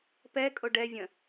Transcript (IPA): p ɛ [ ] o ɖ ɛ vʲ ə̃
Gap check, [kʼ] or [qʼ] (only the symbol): kʼ